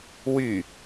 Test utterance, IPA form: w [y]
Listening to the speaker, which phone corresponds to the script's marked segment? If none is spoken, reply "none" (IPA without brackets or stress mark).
y